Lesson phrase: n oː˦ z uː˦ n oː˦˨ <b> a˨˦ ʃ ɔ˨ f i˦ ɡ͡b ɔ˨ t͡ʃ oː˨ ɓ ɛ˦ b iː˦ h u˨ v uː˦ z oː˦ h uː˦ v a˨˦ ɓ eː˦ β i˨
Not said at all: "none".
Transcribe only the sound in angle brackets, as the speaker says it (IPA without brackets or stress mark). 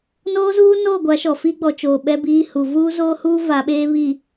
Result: ɡʷ